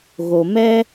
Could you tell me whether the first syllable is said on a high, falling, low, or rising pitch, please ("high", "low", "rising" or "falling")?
low